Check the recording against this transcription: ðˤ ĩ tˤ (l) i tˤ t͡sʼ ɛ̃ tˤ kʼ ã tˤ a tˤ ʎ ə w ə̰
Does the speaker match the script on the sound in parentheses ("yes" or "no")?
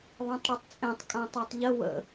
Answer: no